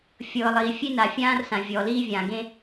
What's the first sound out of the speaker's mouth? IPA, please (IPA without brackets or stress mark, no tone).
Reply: fʲ